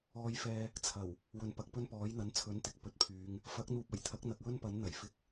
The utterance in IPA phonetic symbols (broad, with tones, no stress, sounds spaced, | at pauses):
ɔː˧ j f ɛː˧ | t͡sʰ ɐ˨˩ w | w ɵ˨ n p ɐ˨ k̚ p ɵ˥ n p ɔː˨˥ j n̪ ɐ˨˥ n t͡sʰ ɵ˨˥ n t̪ ɪ˨ k̚ p ɵ˨˥ t̚ pʰ yː˨˧ ŋ | f ɐ˨˥ k̚ n̪ uː˨ p̚ ɐ˨˩ j t̪ʰ ɐ˨˥ k̚ n̪ ɐ˨ k̚ w ɵ˥ n p ɐ˨˥ n n̪ ɐ˨˩ j f ɪ˧ k̚